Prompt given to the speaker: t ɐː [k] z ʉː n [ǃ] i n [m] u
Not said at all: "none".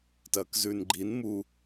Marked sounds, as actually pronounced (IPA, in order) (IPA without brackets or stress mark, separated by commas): k, ɡ͡ǃ, m